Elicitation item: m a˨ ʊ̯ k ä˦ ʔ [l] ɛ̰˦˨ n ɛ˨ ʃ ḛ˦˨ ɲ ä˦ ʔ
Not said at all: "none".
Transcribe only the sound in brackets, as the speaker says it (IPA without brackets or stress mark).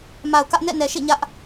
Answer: n